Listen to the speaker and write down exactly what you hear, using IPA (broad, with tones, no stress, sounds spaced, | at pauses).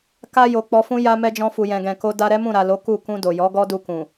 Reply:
k a˧ j o˨ k͡p ɔ˧ f ũ˦ j a˧ m ɛ˧ d͡ʒ ɔ̃˧ f u˨ j ɛ̃˨ ɡ ɛ̃˨ k o˧ d a˧ ɾ ɛ˦ m ũ˦˨ ɾ a˨ l o˨˦ k u˦˨ k ũ˧ d o˨ j ɔ˨˦ ɡ ɔ˦ d u˧ k ũ˨